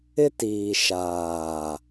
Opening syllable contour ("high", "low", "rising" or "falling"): high